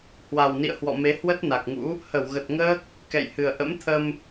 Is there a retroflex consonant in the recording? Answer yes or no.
no